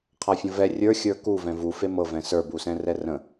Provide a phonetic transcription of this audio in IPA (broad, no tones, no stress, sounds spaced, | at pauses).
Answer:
qʰ a fʲ ə̃ v ɛ rʲ ə˞ xʲ ə˞ k u v ɛ̃ v u f e m ɤ v ɛ̃ s ə˞ b u s ɛ̃ r ɛ r ə̃